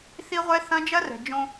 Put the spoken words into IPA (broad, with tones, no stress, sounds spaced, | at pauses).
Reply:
θ i˦ ʁʷ ɛ˦ θ ɐ̃˦ d͡ʒ ɐ˦ r ɛ̤˨ d͡ʒ õ˦